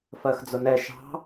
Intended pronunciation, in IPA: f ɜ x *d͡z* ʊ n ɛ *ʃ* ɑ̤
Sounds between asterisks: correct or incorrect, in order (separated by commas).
correct, correct